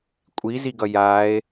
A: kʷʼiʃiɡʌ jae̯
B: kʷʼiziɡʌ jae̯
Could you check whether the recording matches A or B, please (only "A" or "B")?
B